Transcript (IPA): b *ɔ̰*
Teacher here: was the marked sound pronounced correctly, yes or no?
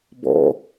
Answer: yes